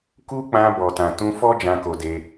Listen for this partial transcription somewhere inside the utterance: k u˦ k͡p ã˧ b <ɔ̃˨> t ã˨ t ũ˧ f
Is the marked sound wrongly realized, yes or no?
yes